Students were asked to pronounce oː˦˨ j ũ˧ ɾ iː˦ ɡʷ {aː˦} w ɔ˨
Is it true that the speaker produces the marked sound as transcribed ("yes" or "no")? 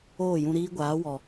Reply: no